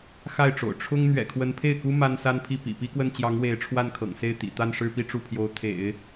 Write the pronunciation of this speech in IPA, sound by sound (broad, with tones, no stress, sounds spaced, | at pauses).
x a˥˩ ɪ̯ ʈ͡ʂ o̰˨˩ ʊ̯ ʈ͡ʂʰ ʊ˥ ŋ n̪ ɥ ɛ̰˨˩ kʰ w ə˧˥ n pʰ e˥˩ ɪ̯ k u˥ m a˥ n s a˥ n pʰ i˥˩ p ḭ˨˩ p i˥ k w ə˥˩ n t͡ɕ j ɑ˧˥ ŋ w e˧˥ ɪ̯ ʈ͡ʂʰ w a˥˩ n kʰ ɤ̰˨˩ ŋ s e˥˩ ɪ̯ t̪ ḭ˨˩ t̪ a˥˧ n ʂ ɻ̩˥˧ p i˥˧ ʈ͡ʂ u˥˩ pʰ j o˧˥ ʊ̯ t̪ʰ ḛ˨˩˦ ɪ̯